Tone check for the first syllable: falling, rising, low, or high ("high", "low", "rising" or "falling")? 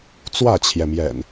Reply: falling